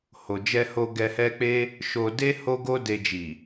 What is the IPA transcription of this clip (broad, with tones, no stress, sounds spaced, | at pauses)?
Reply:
h o˨ d͡ʒ ɛ˧ h o˧ ɡ ɛ˧ h ɛ˦ k͡p e˦ | ʃ o˧ d e˦ h o˦ ɡ o˦ d e˧ d͡ʒ i˨